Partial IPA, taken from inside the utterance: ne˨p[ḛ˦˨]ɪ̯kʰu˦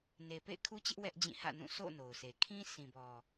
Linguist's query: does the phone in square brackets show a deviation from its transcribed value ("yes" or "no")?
no